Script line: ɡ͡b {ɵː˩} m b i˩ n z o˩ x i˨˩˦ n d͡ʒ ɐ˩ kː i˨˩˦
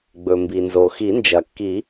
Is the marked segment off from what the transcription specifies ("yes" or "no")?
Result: yes